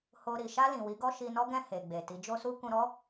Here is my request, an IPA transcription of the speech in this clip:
h o˧ ɾ i˨ ʃ a˧ l ĩ˨ w i˨˦ ɡ ɔ˦ ʃ i˧ n ɔ˦ ɡ ɛ̃˦˨ h e˨ ɡ͡b e˨ t i˨˦ d͡ʒ o˦ s u˦ k ũ˧ ɾ ɔ˦

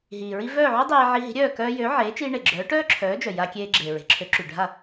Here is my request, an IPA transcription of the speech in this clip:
ɦ iː˩ ɹ i˧ v œː˥˩ ʕ y˥ dˤ eː˧ ʕ i˧ ɦ i̤˩˥ ɾʲ œː˥˩ k œː˧ j ø˩˥ ʕ eː˩˥ t͡ʃ iː˧ ɳ e˩ ɡ͡ǁ œː˩˥ ʈ œː˥ ǁʰ œː˩˥ d͡ʒ œ˩ j a˧ kʲ eː˧ ɡ͡ǁ eː˩ ɹ e̤˩ ǁʰ ø˩˥ ǁ y˩ ɖʱ a˥˩

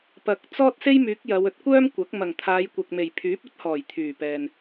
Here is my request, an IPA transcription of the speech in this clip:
p ɐ˨ k̚ t͡s ɔː˥ t̚ s e˥ j m yː˨˥ k̚ j ɐ˨˧ w ɵ˨˥ t̚ kʷ œː˥ m kʷ ɐ˨˥ k̚ m ɐ˨˩ ŋ t̪ʰ aː˨˧ j kʷ ɐ˨ k̚ m e˨˩ j pʰ yː˨˥ p̚ ɵ˥ t̚ h ɔː˨˩ j t̪ʰ yː˨˩ p ɛː˨ n

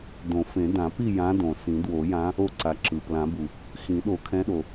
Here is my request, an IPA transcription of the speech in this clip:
d õ˨˩˦ f ẽ˨˩˦ d ã˨˩˦ p i˥˨ j ã˨˦ d õ˩ s ĩ˨˩˦ d w o˨˩˦ j ã˨˦ | o˥˨ ǀ a˨˦ ǁ ɯ˩ p l ã˨˩˦ b u˩ | x ĩ˨˩˦ ɗ o˨˩˦ kʰ ɛ̃˨˦ ɗ o˩

